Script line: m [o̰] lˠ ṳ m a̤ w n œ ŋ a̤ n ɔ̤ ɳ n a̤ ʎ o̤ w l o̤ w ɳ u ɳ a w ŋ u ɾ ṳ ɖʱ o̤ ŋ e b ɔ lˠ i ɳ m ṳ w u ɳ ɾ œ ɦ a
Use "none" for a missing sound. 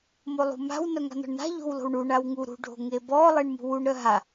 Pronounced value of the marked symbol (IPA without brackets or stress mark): o